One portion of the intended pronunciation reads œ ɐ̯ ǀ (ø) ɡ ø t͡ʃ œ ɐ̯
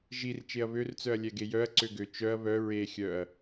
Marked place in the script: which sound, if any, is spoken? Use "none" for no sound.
ø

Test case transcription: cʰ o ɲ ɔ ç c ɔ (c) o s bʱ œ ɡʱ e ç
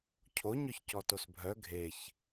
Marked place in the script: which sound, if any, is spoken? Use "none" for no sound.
t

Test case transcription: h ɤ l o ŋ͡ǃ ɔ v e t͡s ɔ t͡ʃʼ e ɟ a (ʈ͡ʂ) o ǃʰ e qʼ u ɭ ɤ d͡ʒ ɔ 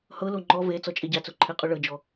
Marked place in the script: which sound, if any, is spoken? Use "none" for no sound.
t͡s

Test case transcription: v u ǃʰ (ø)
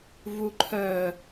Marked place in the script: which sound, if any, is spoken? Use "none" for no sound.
œ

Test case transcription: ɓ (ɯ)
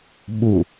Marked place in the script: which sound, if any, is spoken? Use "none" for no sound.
u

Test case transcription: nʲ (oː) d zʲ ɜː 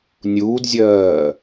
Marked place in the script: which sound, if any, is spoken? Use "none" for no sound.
uː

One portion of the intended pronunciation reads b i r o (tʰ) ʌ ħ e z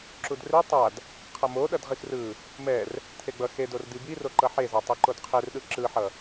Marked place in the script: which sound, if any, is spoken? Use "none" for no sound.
ǃ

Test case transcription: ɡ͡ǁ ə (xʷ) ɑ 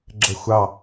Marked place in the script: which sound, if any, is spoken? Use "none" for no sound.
xʷ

